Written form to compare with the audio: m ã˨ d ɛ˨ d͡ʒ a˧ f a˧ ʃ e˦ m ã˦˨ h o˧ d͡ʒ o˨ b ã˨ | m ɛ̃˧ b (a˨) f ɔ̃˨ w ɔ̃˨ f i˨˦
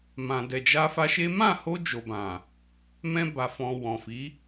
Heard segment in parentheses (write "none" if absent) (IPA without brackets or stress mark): a˨